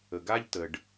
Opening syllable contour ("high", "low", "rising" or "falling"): low